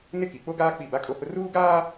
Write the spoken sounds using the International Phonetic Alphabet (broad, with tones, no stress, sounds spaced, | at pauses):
n ɪ˦ k i˨ k͡p o˦ ɡ aː˦ k͡p i˦˨ b a˦ kʼ o˦ h ʊ˦ r uː˦ ɡ aː˦